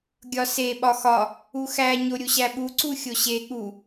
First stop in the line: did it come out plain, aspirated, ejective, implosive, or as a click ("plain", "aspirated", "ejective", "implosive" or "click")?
plain